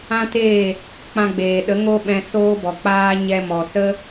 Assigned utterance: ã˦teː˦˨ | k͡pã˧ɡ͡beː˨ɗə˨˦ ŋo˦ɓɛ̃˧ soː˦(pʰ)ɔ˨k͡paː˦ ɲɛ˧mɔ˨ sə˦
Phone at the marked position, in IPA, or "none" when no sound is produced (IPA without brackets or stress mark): b